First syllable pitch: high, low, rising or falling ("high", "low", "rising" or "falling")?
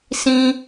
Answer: high